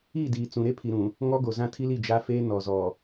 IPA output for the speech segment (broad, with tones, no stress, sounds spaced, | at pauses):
iː˦˨ d iː˨ t͡s ũ˨ ɾ e˦ pʰ i˨ ɾ ũ˨ | ŋ ɔ˦ ɡ o˨ z ã˦ tʰ i˦ l i˦˨ d͡ʒ a˦ f eː˦ n ɔ˨ z ɔ˨